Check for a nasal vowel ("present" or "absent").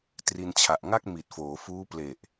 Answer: absent